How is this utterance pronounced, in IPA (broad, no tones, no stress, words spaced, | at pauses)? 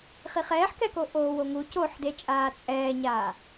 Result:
χiχɛːħkɛko ʔoːwoŋu coħdet͡ʃʼaː t͡sʼɛːɲaː